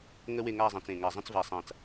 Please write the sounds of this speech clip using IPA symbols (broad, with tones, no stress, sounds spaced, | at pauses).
ŋ ə˥ w e˥˧ ŋ a˥˧ zˤ ã˧ t͡s ẽ˧˩ ŋ a˧˩ zˤ ə̃˥ t͡s v a˧ sˤ ã˧˩ t͡s